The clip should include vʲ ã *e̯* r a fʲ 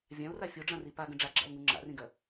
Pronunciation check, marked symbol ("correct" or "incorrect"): incorrect